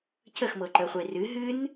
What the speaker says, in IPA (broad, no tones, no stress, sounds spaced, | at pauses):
cʰ ə x m ɤ ǃ əː χʷ e r ɨ ɦ ɨ n